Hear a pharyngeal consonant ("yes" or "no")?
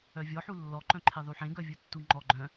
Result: yes